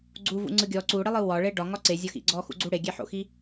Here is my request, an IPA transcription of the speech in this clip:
ɡ͡ǀ u v ṵ ŋ͡ǀ ɯ ɡʲ ɔ ǀ u ɽ i lˠ ɯ w ɒ ɭ e ɖ ɒ ŋ ɒ ǀ e zʲ ɒ x ḭ ɡ͡ǀ ɔ x ṵ ɡ͡ǀ u ɽ e ɡʲ e ħ o̰ x i

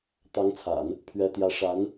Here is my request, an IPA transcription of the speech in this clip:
t̪ ɑ˧˥ ŋ t͡sʰ a̰˨˩˦ n | pʰ ɥ ɛ˥ t̪ j ä˥ ʂ a˧˥ n

